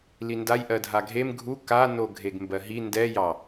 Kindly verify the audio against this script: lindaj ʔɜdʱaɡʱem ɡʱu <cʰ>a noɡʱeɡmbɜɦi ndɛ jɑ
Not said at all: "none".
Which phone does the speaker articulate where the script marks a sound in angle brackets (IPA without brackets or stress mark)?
k